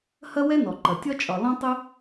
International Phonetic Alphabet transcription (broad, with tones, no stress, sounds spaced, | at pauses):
h ɐ˥ w ɛ˥ n ɔ˩ ǃ ɐ˩ tʲ ɒ˥ t͡ʃʼ ɒ˩ l ɔ̃˥ tˤ ɯ˥